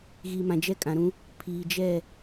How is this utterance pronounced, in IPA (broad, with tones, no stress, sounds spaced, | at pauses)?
ɣ iː˨ m ã˨ d͡ʒ ɛ˦ kʼ ã˨ ɾ ũ˦ | pʰ iː˨ d͡ʒ ɛ˦˨